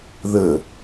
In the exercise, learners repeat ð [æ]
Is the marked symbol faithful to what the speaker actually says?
no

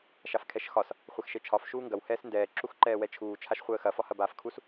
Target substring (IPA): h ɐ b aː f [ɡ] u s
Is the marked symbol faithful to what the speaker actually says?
no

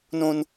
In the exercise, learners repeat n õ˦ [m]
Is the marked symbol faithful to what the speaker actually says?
no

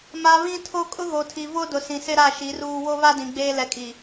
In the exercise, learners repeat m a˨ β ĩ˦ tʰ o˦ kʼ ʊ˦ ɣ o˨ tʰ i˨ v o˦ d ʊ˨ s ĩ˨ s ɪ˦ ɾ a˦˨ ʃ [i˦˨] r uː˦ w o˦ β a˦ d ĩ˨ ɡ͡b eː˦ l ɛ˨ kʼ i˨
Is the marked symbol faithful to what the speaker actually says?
no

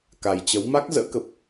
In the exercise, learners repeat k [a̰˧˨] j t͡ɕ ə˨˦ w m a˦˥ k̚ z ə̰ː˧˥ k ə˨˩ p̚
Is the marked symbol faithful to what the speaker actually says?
no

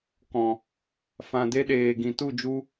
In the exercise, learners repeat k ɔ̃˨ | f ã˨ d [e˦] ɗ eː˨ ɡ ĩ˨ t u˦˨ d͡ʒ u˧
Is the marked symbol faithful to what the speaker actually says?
yes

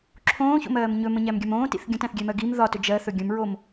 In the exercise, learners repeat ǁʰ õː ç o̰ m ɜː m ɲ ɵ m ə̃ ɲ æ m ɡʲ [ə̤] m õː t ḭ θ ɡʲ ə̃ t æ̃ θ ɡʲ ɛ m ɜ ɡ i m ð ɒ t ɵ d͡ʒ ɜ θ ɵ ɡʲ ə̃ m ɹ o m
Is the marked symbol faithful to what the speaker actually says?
no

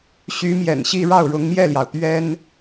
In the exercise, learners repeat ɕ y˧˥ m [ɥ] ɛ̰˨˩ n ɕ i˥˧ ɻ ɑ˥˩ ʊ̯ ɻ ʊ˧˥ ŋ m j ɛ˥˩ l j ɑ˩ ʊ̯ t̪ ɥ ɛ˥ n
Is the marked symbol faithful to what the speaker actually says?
no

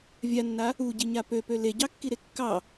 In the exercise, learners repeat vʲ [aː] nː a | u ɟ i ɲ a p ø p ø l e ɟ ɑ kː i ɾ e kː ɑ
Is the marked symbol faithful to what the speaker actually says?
no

